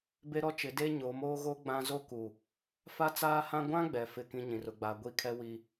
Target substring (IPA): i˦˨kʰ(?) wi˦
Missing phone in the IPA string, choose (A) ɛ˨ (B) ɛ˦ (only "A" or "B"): B